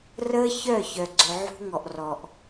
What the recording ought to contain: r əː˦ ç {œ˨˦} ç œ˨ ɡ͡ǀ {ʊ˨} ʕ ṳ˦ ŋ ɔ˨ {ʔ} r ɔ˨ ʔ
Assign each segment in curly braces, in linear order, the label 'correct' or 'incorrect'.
incorrect, correct, correct

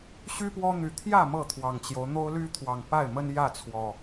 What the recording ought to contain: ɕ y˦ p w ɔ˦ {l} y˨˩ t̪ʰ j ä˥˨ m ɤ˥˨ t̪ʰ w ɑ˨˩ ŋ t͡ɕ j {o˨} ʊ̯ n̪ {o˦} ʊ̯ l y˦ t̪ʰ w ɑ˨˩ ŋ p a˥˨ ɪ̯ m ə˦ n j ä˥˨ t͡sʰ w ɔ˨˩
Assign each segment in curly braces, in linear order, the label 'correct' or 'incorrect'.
incorrect, incorrect, correct

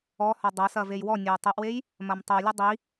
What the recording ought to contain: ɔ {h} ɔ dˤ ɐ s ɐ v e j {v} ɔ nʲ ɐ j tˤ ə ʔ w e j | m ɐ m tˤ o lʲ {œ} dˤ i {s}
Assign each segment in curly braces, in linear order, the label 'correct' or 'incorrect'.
correct, incorrect, incorrect, incorrect

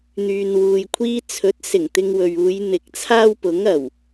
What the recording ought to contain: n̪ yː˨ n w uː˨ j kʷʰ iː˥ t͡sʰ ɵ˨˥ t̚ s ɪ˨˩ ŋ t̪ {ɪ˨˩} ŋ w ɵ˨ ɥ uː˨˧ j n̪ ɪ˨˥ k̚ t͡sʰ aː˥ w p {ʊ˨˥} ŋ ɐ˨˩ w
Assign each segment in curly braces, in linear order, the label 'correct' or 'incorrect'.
incorrect, correct

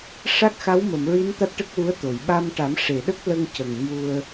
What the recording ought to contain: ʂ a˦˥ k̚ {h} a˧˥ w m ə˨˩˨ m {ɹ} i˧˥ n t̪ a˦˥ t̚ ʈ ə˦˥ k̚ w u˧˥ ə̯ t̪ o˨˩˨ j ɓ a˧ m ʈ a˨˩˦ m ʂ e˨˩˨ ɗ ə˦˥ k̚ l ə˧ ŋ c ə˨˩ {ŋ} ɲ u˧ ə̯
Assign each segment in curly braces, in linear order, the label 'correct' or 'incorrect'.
incorrect, correct, correct

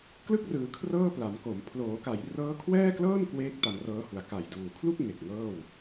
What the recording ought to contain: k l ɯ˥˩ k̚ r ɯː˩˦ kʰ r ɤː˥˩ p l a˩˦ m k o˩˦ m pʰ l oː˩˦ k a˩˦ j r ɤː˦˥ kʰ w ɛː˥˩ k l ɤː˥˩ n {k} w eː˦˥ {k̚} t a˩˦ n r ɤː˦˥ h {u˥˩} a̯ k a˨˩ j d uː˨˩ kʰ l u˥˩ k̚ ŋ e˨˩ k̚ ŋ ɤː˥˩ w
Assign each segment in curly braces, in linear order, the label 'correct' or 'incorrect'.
correct, correct, incorrect

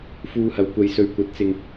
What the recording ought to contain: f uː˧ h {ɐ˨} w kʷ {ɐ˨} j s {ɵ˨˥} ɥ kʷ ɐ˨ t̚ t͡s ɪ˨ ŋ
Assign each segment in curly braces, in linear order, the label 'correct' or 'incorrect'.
incorrect, incorrect, incorrect

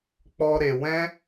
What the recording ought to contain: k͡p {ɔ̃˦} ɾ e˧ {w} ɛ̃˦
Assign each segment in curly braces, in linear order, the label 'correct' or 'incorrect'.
incorrect, correct

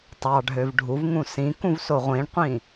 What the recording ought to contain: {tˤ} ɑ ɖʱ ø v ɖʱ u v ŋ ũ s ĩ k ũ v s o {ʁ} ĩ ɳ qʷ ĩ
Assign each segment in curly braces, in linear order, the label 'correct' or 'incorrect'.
correct, incorrect

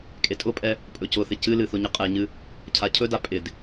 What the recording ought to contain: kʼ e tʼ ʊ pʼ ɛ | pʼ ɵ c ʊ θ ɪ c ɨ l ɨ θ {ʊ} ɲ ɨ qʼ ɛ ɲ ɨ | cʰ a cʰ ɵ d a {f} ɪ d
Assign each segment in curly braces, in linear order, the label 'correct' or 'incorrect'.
correct, incorrect

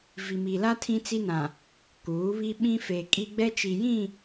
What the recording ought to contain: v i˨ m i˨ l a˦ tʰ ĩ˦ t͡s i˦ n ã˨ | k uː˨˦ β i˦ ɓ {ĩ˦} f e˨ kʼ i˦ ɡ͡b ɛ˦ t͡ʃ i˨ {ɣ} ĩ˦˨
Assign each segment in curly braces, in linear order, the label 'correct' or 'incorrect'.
correct, incorrect

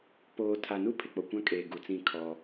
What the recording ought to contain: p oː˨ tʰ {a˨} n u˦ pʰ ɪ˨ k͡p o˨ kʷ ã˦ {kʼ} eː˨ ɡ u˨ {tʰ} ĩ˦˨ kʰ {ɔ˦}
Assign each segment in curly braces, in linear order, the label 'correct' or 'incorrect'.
correct, correct, incorrect, correct

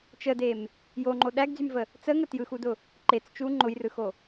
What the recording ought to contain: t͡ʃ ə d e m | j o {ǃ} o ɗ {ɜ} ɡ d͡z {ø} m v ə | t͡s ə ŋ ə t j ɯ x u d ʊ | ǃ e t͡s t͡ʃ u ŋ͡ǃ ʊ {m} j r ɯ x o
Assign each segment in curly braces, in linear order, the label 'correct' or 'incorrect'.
incorrect, incorrect, incorrect, incorrect

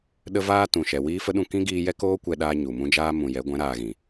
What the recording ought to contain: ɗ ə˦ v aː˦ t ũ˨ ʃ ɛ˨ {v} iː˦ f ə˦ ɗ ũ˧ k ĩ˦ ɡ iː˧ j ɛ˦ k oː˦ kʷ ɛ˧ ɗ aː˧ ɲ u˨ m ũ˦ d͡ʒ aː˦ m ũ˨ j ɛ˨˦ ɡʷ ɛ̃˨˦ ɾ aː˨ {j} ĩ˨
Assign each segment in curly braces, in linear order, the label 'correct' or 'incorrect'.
incorrect, incorrect

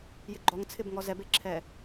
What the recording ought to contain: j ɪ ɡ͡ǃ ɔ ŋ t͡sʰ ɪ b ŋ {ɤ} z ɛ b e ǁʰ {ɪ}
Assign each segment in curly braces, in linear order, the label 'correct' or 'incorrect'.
incorrect, incorrect

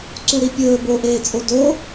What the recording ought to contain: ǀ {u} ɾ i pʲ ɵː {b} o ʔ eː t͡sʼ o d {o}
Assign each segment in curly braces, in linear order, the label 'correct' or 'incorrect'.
correct, correct, correct

